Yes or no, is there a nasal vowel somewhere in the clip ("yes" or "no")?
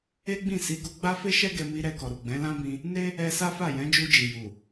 yes